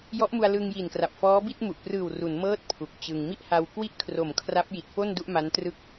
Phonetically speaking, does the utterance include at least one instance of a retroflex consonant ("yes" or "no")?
no